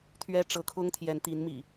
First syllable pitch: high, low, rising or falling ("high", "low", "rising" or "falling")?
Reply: high